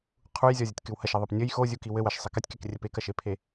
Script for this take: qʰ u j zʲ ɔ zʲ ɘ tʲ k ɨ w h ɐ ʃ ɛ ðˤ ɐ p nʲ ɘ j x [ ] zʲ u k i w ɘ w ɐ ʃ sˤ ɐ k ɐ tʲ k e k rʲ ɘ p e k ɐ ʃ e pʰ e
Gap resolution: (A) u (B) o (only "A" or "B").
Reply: B